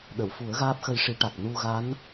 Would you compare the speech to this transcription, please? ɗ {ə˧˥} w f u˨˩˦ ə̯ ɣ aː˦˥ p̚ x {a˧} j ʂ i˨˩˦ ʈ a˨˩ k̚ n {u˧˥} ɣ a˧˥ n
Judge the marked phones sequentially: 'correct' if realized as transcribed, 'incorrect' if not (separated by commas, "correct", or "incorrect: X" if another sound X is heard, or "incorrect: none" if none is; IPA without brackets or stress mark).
incorrect: ə˨˩˨, incorrect: ə˧, incorrect: u˧